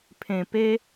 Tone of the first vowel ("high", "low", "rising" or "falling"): low